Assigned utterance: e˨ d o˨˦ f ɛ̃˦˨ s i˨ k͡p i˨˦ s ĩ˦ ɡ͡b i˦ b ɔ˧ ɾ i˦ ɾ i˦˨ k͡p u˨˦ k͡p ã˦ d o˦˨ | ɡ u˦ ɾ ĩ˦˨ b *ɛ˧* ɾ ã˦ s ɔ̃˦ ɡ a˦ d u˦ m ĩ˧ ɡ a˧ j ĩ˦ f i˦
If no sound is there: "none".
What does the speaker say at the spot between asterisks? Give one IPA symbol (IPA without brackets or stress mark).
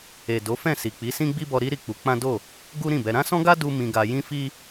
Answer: ɛ˧